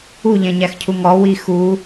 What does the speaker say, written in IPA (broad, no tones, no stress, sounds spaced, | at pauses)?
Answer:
u ʎ ɛ̃ ɲ æ x cʰ u ŋ ɔ w i x u